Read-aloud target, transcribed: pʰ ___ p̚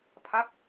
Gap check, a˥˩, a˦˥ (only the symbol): a˦˥